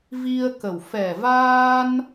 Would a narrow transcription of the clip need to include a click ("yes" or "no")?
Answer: no